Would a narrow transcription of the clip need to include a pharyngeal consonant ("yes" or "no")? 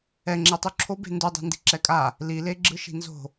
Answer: no